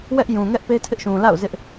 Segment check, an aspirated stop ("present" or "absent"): present